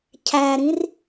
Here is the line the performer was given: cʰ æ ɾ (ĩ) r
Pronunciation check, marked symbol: correct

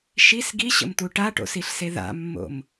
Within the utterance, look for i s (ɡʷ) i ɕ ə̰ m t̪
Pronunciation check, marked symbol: incorrect: ɡ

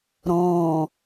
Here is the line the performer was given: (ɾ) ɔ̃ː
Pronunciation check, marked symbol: correct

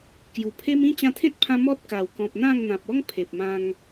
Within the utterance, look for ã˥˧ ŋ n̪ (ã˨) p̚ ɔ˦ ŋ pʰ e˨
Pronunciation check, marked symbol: correct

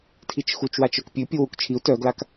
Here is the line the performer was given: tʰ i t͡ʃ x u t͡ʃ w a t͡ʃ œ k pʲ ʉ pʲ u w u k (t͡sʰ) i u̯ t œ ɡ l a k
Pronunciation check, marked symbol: incorrect: t͡ʃʰ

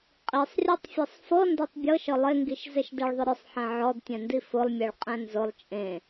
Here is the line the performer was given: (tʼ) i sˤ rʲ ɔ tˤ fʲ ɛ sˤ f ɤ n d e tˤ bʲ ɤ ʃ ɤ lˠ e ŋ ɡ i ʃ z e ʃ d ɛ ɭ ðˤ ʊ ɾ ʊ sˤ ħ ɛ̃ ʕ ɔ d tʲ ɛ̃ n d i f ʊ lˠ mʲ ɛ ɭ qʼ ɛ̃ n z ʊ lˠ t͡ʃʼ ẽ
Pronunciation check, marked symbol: incorrect: qʼ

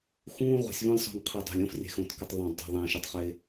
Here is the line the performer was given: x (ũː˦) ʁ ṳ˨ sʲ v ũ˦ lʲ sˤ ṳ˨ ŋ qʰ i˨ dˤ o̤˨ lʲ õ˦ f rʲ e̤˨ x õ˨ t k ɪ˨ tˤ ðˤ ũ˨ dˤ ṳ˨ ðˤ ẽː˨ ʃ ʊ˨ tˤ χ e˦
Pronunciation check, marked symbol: correct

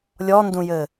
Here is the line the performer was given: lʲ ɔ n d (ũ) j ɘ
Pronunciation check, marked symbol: correct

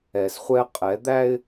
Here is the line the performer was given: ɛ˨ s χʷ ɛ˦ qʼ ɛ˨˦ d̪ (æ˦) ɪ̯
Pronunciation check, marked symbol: correct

